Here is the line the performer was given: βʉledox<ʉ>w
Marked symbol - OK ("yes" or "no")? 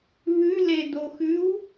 yes